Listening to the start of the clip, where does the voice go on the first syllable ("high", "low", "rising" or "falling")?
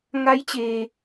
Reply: rising